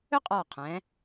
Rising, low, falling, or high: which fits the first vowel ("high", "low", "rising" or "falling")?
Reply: high